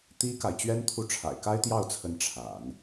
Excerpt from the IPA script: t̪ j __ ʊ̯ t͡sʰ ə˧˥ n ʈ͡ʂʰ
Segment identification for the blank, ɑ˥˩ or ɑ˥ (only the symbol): ɑ˥˩